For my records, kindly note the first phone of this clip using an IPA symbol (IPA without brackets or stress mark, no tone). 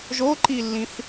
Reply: ʒ